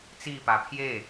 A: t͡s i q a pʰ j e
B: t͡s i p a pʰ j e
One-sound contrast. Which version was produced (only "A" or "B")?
B